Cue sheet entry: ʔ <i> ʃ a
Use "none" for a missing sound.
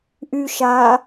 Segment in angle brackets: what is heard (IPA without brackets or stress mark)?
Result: y